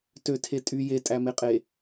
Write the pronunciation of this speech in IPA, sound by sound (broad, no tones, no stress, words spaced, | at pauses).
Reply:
tøtʰe tʼy jetʼæmeqʼe